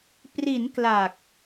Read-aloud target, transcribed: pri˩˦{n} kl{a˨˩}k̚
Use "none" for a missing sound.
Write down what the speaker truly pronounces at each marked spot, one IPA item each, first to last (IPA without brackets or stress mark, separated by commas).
n, a˨˩